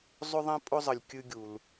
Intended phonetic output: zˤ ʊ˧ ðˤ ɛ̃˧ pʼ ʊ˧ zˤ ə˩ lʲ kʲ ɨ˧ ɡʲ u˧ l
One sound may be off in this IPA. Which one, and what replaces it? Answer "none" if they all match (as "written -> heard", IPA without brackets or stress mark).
u˧ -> u˩